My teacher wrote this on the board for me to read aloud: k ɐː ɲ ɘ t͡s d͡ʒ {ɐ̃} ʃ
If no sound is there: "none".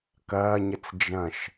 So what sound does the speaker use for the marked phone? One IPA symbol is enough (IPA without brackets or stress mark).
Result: ɐ̃